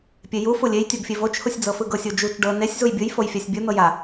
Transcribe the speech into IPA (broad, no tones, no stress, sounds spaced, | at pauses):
pʲ e j u f u lʲ e j tʲ ɤ ɡ fʲ e v o t͡ʃ h u sʲ d͡z ɤ f ɯ ɡ ɤ sʲ o d͡ʒ u t͡ʃ ɖ ɤ n e sʲ z u j bʲ ɯ j f o j fʲ a sʲ bʲ ɯ n̪ ɤ j a